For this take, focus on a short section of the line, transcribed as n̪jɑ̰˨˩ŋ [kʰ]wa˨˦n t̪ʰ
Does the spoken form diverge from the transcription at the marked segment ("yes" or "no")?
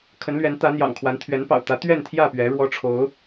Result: no